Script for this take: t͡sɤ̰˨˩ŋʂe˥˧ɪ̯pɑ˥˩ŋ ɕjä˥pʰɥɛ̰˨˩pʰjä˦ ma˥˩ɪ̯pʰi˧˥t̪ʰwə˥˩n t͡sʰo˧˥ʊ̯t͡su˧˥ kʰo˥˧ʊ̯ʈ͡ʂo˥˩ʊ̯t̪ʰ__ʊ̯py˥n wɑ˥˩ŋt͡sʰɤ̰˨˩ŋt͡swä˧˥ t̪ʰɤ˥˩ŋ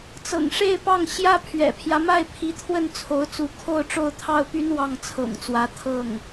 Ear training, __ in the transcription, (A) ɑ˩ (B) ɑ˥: B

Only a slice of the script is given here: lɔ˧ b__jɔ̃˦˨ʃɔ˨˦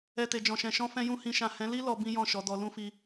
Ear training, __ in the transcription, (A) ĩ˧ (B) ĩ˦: B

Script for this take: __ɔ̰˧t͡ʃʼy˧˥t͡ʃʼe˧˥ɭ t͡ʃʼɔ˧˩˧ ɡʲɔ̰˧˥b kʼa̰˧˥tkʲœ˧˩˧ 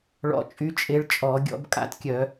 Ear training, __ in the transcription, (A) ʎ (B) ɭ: B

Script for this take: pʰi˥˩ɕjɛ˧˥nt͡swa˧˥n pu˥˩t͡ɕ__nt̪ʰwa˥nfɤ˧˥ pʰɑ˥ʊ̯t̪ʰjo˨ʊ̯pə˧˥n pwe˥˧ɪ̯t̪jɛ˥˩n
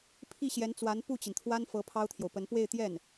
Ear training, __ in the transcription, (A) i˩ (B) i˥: A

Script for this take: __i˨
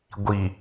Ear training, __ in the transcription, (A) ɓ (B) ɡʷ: B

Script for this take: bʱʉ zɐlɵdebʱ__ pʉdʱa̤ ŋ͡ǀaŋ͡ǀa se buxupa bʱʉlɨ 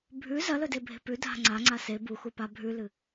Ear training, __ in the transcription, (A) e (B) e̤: B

